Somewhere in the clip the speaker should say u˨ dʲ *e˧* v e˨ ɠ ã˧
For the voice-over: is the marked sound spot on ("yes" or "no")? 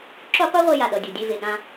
yes